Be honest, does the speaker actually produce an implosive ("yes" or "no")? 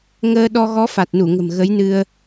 yes